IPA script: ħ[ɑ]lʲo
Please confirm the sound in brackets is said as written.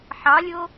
yes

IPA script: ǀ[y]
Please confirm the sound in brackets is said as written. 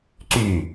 yes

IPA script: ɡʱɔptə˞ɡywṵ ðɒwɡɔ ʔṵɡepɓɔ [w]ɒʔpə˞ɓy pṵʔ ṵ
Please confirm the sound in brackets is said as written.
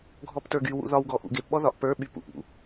no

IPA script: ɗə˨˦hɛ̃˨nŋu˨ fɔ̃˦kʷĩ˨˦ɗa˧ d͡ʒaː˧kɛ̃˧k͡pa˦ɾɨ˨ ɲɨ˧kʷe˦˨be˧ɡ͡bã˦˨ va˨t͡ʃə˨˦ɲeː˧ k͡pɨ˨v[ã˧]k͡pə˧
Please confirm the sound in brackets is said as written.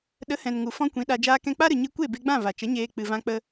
yes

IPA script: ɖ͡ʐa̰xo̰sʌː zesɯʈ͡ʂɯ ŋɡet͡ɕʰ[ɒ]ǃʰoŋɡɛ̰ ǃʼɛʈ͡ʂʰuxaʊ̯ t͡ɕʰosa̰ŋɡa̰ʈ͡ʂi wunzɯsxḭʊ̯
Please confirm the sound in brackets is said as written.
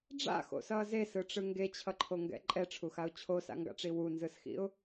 no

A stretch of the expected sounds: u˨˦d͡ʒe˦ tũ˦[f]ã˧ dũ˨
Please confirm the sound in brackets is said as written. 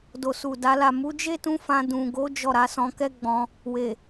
yes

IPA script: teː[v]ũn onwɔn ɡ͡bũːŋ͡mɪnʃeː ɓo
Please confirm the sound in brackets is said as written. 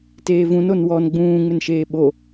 yes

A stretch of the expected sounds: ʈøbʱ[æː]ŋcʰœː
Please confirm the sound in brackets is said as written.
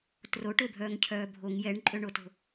no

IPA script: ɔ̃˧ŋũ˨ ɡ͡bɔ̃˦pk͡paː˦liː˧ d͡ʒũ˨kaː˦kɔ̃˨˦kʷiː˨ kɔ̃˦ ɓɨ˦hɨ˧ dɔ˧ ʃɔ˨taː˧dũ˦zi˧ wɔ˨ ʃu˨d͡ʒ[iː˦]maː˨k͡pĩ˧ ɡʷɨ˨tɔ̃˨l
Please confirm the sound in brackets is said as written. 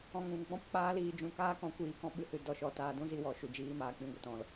yes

